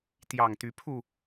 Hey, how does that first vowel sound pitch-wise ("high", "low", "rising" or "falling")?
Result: low